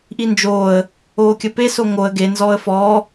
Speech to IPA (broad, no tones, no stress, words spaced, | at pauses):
ʔind͡ʒoːə̯ | oːkʲəpe soŋoə̯ ɡe nzɔːə̯fɔː